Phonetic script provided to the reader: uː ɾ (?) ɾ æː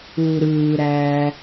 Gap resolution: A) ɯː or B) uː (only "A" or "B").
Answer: A